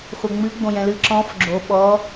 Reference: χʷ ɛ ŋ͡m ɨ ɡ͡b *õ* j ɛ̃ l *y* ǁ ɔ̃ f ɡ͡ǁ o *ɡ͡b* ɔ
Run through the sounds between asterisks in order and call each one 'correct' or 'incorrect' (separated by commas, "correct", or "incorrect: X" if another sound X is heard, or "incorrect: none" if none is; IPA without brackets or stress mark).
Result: correct, incorrect: ɨ, incorrect: ɓ